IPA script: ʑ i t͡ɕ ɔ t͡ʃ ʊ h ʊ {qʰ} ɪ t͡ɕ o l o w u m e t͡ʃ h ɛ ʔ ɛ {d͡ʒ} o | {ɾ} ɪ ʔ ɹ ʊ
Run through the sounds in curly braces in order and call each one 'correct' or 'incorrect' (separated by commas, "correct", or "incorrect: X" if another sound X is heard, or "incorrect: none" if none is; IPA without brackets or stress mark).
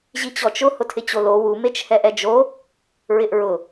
incorrect: tʰ, correct, incorrect: ɹ